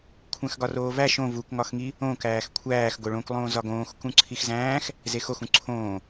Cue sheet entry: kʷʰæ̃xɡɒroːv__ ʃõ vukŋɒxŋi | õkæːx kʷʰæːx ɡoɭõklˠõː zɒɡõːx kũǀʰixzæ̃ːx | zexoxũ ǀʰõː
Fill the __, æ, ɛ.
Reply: æ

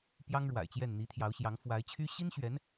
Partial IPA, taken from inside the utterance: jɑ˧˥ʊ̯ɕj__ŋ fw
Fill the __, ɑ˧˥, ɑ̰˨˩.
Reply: ɑ˧˥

